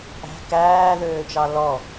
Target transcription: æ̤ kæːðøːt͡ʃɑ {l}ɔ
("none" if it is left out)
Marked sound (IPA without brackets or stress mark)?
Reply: l